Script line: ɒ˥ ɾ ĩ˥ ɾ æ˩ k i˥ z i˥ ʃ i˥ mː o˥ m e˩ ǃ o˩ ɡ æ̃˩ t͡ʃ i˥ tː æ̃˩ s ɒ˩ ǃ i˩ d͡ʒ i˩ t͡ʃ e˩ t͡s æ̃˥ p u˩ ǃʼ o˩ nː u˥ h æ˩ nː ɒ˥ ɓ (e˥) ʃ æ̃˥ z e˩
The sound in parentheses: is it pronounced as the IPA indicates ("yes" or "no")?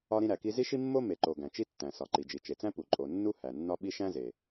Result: no